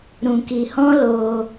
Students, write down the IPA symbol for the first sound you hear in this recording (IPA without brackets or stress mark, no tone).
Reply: ɾ